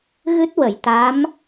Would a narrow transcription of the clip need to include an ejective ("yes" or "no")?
no